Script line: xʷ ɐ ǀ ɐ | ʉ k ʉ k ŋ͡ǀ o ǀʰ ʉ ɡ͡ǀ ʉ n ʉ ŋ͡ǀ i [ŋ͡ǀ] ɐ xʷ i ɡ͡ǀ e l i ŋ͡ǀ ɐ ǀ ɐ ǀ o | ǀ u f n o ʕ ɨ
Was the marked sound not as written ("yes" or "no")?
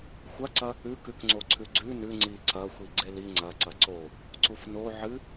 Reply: yes